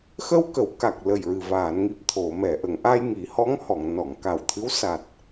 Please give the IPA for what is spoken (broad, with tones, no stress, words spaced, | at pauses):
xə˧w kə˨˩˦wka˨˩k̚lə˨˩j ɹɨ˨˩vaː˨˩˨nŋi˨˩p̚ t̪ʰo˨˩˨mɛ˨˩˨ ʔə˨˩˨ŋʔa˧j ŋi˨˩˦hɔ˧˥ŋhɔ˨˩˨ŋ nɔ˨˩˨ŋka˨˩wt̪ʰɨ˧˥w sa˨˩t̚